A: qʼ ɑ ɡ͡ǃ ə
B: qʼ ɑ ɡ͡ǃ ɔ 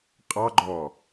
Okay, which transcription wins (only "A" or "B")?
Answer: B